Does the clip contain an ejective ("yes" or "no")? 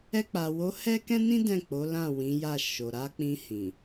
no